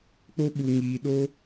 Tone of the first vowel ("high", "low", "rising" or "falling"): high